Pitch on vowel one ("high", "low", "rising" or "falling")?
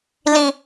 low